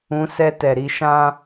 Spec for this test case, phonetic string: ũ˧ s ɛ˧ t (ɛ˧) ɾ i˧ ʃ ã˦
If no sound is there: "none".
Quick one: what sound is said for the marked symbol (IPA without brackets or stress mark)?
ɛ˨